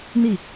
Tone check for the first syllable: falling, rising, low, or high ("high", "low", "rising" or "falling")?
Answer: falling